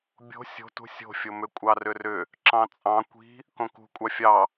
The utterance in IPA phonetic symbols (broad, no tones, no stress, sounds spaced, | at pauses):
bʲ o̤ sʲ o̤ t ṳ sʲ o̤ fʲ o m ʏ kʷʼ ɑ r ʏ r ʏ | ǁ ɑ̃ t͡sʼ ɑ̃ kʷ i̤ | k õ k ṳ kʷʼ ɑ fʲ ɑ